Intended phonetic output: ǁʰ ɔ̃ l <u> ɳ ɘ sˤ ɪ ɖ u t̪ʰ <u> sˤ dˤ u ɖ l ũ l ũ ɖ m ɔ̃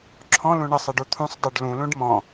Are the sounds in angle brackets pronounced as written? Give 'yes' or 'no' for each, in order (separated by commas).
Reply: no, no